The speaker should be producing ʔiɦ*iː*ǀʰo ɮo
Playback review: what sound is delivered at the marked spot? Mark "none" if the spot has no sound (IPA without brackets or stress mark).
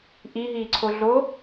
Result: iː